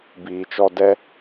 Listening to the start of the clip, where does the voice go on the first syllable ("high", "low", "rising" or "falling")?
low